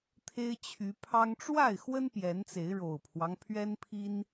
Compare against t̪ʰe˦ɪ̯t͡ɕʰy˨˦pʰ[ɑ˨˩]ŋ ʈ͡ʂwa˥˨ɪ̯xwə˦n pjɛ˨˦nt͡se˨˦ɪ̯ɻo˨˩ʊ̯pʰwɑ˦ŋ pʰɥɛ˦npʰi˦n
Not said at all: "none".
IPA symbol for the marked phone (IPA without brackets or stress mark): ɑ˦